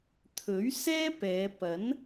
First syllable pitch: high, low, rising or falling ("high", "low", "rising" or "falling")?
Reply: rising